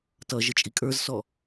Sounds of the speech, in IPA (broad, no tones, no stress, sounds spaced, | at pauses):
t ʌ ʒ ə t͡ʃʼ i kʼ ə˞ z s ɔ